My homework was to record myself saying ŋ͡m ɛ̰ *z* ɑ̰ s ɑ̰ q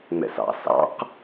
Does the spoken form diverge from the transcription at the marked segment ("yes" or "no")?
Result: yes